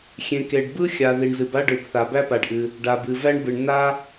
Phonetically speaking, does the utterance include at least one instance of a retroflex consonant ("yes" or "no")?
yes